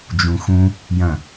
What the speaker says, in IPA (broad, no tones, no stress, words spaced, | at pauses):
d͡ʒũxũ | jɐ̃